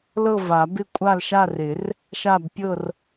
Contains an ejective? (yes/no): yes